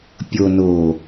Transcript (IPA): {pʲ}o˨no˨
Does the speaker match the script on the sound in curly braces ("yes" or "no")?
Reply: yes